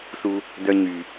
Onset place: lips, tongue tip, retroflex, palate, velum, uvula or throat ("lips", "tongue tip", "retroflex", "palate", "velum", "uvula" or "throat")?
tongue tip